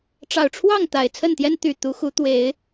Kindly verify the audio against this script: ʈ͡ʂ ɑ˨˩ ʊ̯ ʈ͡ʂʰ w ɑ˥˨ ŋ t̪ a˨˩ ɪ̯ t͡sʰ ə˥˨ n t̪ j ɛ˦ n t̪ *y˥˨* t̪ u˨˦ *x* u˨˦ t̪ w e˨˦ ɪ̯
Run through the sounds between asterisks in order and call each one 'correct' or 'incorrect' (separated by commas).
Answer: incorrect, correct